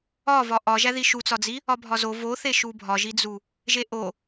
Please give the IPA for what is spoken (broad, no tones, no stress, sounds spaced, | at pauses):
ɒ v ɒ ʔ ɒ ʒ æ ð i ʃ u t͡s ɒ d͡z i | ɒ bʱ ɒ z o v o θ e ʃ u bʱ ɒ ʒ i d͡z u | ʒ e ʔ o